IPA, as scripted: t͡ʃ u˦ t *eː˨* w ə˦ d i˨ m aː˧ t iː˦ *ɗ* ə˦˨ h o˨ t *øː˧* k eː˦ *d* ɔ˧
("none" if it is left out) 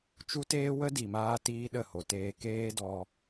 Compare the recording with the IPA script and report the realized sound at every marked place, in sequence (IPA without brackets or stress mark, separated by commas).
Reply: eː˦, ɗ, eː˧, d